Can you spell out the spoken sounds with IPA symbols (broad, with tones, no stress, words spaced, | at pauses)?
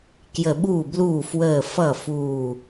kjə˧˩ɓuː˥˩bluː˥˩ fwəː˧˩ fʌ˥˩ fuː˧˩